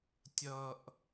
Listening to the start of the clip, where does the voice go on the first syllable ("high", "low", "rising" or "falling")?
low